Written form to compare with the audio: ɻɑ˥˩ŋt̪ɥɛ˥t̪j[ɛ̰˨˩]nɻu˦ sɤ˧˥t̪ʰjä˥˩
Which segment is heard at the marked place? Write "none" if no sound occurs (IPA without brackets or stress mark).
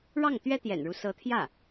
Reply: ɛ̰˨˩